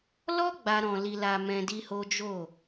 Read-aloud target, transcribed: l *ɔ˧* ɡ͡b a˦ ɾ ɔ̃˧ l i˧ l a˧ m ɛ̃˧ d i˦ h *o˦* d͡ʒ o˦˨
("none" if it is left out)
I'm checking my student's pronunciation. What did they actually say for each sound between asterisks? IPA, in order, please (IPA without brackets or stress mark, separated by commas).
ɔ˦, o˦